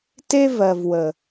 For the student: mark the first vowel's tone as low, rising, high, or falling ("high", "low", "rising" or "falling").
high